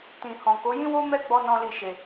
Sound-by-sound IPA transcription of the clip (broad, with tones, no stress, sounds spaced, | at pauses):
t ĩ˨ h ɔ̃˨ k o˨˦ j ĩ˦ w o˦ m ɛ˦ ɡ͡b ɔ˧ n ɔ̃˦ l i˦˨ ʃ e˨